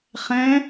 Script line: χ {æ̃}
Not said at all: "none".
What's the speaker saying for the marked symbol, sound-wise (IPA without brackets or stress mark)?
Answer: ɛ̃